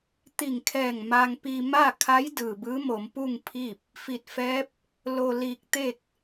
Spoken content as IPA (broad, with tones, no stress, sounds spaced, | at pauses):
t̪ i˧˩ ŋ kʰ ɛː˧˩ ŋ m a˧ ŋ p i˧ m a˥˨ kʰ a˧˥ j d ɯː˩ b ɯː˧˥ m o˩˧ m p u˥˨ ŋ pʰ i˥˨ p̚ | f i˧˩ t̚ f ɛː˧˥ p̚ | l o˧ l iː˧ k̚ t̪ e˥˨ k̚